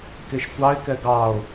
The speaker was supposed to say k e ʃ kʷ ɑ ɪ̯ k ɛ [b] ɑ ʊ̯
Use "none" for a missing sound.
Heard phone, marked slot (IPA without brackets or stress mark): ɡ